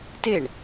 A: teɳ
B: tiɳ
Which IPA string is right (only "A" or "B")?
A